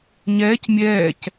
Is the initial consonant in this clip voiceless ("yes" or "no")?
no